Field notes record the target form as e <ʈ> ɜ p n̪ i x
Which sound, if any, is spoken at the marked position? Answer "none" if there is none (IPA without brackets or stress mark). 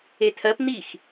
tʰ